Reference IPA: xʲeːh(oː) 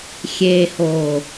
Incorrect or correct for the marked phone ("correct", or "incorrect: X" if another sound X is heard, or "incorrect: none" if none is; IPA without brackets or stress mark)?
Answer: correct